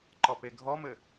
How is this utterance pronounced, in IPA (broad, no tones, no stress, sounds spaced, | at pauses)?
ǃ ɔ p e ɡʱ ɔ m ɘ